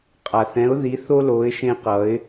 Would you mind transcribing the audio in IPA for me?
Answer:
qʼ a˨ θ ɛ̃˨˦ ʊ̯ ð i˨˦ θ o˦ l o˨˦ ɪ̯ ʃ ẽ˦ q ʌ˨˦ ɪ̯

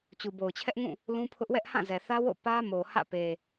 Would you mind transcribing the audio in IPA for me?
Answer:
t͡ɕ u˨ b o˨ ʊ̯ t͡ɕʰ ɛ˦ ʔ ŋ ũ˦˨ | l ũ˦ pʰ ʊ˦ ʔ w ɛ˦ ʔ h ã˦˨ z ɛ˨ θ ä˦ w o̰˦˨ p ä˦ m o˨ h ä̰˦˨ p e˨

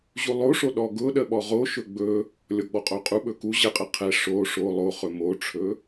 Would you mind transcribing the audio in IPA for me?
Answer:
ʑ u lˠ o ʂ o ɗ ɔ ɡ ʊ ɗ ə ɓ ɔ ʁ o ʃ ɵ ɡ͡b ɵ | lʲ ɔ ɡ͡b ɔ qʼ o qʼ u ɓ ɵ k u ʑ ə qʼ ə qʰ ɛ ʂ o ʂ o lˠ o χ ɵ m o ʈ͡ʂʰ ɵ

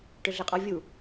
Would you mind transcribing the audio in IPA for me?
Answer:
ʈ ʏ ɮ ɛ qʼ ɔ vʲ u

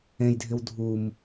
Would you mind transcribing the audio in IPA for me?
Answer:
ẽ j dʱ ɪ w dʱ u m

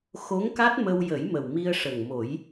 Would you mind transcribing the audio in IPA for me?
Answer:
x o˧˥ ŋ k a˦˥ t̚ m ə˧ w j ə˨˩˦ j m ə˨˩ w m i˧ ə̯ ʂ ə˨˩ ŋ m o˨˩˦ j

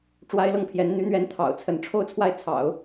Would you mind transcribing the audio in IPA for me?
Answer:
ʈ͡ʂ w a˥ ɪ̯ l ɤ˥˩ ŋ pʰ j ɛ˧˥ n n̪ y˧˥ n̪ ɥ ɛ˧˥ n t̪ʰ ɑ̰˨˩ ʊ̯ t͡sʰ ə˧˥ n ʈ͡ʂʰ o˥˧ ʊ̯ t͡sʰ w a˥˩ ɪ̯ t͡sʰ ɑ̰˨˩˦ ʊ̯

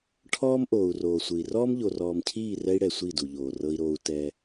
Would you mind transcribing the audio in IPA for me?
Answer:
ʈʰ ɔː˦ m ʔ oː˨ u̯ r oː˨ sʷ ɯ˨ i̯ r ɔː˦ m ʎ o˨ r ɔː˨ m cʰ iː˦˨ r ɛ˦ i̯ ɽ ɛ˨ sʷ i˦˨ d u˨ ʎ oː˨ r ɤ˦ i̯ ɾ oː˦ u̯ t ɛ˦

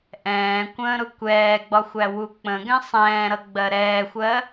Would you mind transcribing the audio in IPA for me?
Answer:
ʔ ɛ̃ː kʷ ə̃ː ɾ ʊ kʷ ɛː ɡ͡b ɒ xʷ æ w u k͡p ə̃ ɡ ɛ̃ sˤ ɛ̃ː ɾ ʌ ɡ͡b ɜ ɾ ɛː xʷ ɜ

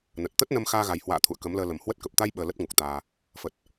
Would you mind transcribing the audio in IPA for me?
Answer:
n ə˨˩ t̚ t̪ ə˦˥ t̚ n ə˧ m x aː˧ ɣ a˨˩ j h w a̰ː˧˨ t̪ʰ ṵ˧˨ ə̯ k ə˨˦ m l əː˧ l ə˨˩ m h w ə˦˥ t̚ k ə˨˩ p̚ t̪ a˧ j ɓ əː˧ l ə˦˥ t̚ ŋ u˨˩ k̚ t̪ aː˧ | f ə˨˩ t̚

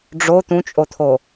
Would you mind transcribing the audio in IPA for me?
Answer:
ɖ͡ʐ o t̪ ũ t͡ʃʼ o t̪ʰ o

